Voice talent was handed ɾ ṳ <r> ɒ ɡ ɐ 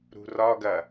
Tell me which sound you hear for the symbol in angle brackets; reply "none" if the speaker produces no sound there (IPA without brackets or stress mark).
r